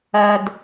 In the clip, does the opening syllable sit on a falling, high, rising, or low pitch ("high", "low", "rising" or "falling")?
low